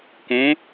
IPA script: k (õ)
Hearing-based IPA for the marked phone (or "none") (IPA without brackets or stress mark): õ